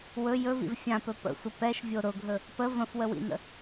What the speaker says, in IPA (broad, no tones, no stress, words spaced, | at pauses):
wɵ jɵvḭv fʲãpɵ pə̰sʷə pɛʃvʲo ɾʊɡʱɵ | pə və̃fwəwḭnə̰